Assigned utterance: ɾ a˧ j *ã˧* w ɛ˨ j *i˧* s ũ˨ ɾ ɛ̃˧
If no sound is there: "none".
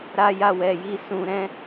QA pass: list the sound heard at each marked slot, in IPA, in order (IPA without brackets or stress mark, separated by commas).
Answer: a˧, i˧